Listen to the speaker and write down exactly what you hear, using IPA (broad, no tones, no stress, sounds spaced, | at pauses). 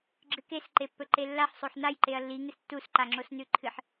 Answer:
ɡ͡ǁ ɨ k e s ǃ e pː ɵ ǃ e lː a ħ sˤ o ħ n a j ǃ e ɐ̯ lː i ŋ ɨ s tː u s ǃ a ŋ͡ǁ o s n ʉ ǃʰ ɨ ħ